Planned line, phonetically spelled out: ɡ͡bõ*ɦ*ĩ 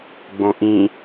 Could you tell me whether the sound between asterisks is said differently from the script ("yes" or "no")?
yes